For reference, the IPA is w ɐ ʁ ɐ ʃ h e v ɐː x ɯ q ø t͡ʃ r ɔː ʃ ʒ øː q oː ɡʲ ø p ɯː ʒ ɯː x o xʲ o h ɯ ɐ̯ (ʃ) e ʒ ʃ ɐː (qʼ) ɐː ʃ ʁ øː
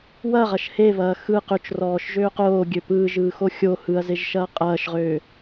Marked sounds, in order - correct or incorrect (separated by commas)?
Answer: incorrect, correct